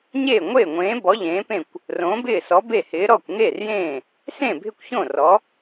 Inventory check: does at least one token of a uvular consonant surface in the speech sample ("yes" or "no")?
no